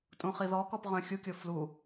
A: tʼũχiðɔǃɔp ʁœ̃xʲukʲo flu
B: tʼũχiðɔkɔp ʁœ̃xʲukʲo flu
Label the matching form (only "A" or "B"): B